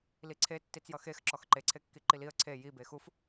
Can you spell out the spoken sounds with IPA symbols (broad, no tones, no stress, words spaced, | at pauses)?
liǀʰe tːit͡sjʌxex ǁɔxǃeǀʰekːi ǃiliə̯ ǀʰe jibe xuf